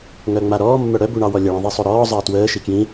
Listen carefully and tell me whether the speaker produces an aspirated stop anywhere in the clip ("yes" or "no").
no